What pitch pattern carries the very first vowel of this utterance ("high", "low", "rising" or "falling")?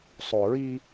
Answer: low